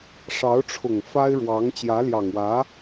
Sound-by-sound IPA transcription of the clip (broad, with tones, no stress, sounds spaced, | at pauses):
ʂ ɑ˧˥ ʊ̯ ʈ͡ʂʰ ʊ˨˩ ŋ f a˥ ɪ̯ ɻ w ɑ˧˥ ŋ t͡ɕ j ä˧˥ l j ɑ˨˩ ŋ w ä˧˥